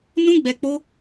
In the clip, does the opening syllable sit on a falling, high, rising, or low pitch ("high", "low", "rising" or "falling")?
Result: high